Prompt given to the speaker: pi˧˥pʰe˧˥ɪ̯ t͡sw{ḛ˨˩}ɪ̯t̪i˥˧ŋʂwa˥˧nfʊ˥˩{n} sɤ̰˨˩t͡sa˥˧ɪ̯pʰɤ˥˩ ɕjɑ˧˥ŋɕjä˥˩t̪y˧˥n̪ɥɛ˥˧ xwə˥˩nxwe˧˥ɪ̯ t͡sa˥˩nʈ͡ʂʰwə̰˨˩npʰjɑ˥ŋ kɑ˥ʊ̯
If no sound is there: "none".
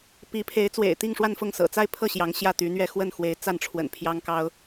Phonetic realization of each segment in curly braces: ḛ˨˩, ŋ

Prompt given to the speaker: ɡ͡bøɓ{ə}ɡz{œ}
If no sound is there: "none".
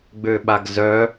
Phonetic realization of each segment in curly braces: a, œ

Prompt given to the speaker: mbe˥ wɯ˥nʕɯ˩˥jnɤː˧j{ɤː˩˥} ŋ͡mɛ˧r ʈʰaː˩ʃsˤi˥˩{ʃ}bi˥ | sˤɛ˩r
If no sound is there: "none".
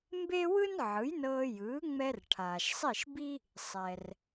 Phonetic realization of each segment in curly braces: ɯː˩˥, ʃ

